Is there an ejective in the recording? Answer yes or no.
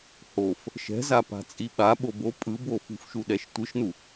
yes